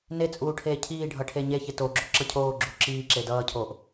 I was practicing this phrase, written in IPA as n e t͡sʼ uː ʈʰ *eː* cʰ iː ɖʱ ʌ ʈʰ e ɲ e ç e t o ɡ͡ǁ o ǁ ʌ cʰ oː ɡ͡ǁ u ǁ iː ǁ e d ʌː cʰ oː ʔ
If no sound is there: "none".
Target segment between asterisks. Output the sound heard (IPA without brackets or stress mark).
eː